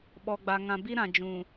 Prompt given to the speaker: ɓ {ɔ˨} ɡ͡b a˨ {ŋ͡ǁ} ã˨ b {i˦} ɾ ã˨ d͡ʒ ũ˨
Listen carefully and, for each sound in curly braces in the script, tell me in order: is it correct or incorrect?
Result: correct, incorrect, correct

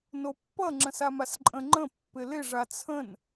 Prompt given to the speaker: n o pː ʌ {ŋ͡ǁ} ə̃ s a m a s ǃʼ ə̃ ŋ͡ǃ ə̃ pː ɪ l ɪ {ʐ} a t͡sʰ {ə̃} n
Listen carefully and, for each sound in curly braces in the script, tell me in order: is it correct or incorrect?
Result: correct, correct, correct

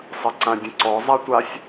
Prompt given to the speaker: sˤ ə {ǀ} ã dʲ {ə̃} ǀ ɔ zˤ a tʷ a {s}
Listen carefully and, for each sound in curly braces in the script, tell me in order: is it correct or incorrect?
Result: correct, correct, incorrect

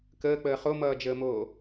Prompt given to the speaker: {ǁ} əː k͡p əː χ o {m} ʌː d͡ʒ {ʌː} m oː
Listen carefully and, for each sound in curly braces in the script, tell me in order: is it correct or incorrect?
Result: incorrect, correct, incorrect

